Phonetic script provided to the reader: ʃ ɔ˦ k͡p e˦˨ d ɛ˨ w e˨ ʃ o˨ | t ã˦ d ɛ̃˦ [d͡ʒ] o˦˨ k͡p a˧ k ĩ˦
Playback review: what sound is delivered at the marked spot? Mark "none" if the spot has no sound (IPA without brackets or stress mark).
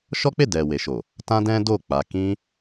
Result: d